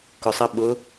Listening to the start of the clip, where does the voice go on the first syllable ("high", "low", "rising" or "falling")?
low